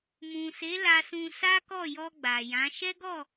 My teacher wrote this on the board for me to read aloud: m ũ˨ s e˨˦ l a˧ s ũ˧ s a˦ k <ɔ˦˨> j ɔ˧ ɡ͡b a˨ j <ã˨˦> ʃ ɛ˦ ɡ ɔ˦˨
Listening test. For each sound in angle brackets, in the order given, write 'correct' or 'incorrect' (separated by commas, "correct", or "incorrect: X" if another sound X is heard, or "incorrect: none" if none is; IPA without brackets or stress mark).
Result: correct, correct